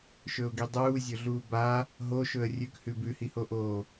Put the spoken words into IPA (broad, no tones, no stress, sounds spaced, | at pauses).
ʃ ɵ ʊ̯ ɡ i dˤ uː zʲ ɵ ɮ uː b a | ɦ o ʃ ɵ ə̯ rʲ ʉ k h ʉ b ʉ h i h o ʔ oː